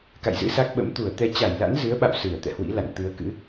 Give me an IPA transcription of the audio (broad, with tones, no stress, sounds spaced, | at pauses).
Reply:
k a̰˧˨ j z ɨ̰˧˥ s a˦˥ k̚ ɓ ə̰˧˥ m t̪ u˧˩ ə̯ t̪ ɛ˧ t͡ɕ a˧˩ j l a̰˧˥ n z ɨ˨˦ ə̯ ɓ a̰˧˨ w s ɨ˧˩ ə̯ t̪ ɛ̰˧˨ h w ḭ˧˥ l a̰˧˨ n t̪ ɨ˨˦ ə̯ k ɨ̰˧˥